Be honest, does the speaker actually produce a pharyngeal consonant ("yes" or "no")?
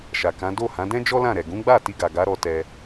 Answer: no